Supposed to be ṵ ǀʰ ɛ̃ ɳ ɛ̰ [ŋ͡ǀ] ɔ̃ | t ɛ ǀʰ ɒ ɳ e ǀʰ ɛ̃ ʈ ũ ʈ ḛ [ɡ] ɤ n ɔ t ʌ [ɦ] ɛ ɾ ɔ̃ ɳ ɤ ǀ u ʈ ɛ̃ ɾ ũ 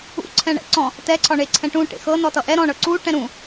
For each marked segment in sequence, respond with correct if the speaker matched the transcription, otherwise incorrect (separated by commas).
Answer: incorrect, incorrect, incorrect